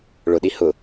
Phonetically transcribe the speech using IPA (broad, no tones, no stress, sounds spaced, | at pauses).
ɭ ʊ ɗ i h ʊ